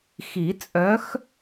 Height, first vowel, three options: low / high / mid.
high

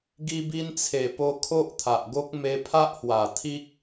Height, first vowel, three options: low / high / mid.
high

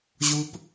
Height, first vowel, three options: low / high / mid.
high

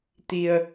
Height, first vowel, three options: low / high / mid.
high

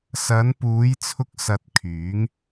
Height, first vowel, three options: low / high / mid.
low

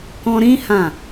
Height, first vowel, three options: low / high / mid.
mid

